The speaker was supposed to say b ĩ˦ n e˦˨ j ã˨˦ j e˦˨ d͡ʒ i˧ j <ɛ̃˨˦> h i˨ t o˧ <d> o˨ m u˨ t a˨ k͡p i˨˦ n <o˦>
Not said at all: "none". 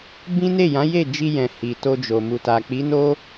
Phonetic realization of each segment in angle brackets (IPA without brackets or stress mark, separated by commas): ɛ̃˨, d͡ʒ, o˦